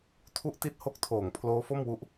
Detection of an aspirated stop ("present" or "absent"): present